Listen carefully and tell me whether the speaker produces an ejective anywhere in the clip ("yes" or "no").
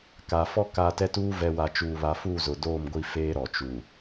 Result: no